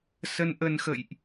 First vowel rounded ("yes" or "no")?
no